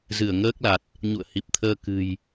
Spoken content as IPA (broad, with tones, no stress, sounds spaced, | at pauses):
z ɨ˧˩ ə̯ ŋ əː˦˥ k̚ l a˨˩ t̚ | ɲ ṵ˧˨ ə̯ h i˨˩ p̚ t̪ʰ əː˧ k ɨ̤˨˩ j